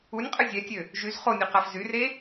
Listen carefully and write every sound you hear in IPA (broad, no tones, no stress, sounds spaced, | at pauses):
u nʲ qʼ ə zʲ ɛ tʲ ø | ʒ y z χ o nʲ u q a f z y r e